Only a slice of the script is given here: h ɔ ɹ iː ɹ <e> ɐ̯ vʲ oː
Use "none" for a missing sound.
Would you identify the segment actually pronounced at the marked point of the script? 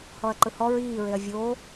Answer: e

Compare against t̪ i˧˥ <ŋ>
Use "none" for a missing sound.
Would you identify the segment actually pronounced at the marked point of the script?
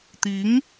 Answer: ŋ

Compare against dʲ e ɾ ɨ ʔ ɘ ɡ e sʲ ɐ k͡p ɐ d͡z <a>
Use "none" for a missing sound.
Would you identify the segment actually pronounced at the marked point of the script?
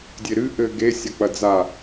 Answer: a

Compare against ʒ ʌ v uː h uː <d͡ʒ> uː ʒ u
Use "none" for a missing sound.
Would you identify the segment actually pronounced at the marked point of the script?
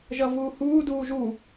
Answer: d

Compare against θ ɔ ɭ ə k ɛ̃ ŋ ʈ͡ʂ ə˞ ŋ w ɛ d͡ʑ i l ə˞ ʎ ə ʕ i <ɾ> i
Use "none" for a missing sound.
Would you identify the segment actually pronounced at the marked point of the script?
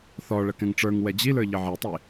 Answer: tˤ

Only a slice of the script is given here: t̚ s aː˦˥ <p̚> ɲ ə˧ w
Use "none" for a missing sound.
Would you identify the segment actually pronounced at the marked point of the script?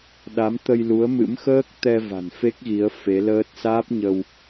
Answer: p̚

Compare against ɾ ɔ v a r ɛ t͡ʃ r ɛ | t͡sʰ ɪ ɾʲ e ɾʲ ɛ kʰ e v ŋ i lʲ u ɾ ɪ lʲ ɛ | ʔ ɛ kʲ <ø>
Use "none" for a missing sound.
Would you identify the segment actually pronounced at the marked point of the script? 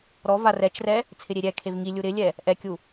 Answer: u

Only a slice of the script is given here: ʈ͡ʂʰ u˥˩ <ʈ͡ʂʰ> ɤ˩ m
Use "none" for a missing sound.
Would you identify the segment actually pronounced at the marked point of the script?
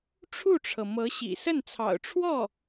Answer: ʈ͡ʂʰ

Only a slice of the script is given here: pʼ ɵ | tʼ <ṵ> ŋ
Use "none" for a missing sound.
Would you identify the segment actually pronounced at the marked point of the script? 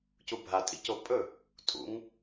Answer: ṵ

